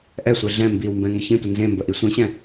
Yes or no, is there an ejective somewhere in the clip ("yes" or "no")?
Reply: no